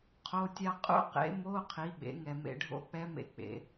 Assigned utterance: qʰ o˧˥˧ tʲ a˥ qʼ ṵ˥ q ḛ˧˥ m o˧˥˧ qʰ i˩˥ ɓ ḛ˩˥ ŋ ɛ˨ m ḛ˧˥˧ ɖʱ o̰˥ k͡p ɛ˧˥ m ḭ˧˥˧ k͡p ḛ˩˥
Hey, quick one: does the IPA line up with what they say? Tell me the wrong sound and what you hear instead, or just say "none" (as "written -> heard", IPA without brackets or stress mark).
ḭ˧˥˧ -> ḛ˧˥˧